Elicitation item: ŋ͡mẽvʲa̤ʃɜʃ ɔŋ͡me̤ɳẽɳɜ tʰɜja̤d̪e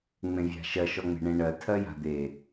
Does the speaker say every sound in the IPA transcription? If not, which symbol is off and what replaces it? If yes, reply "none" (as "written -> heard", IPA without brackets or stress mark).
none